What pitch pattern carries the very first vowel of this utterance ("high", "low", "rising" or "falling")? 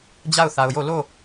falling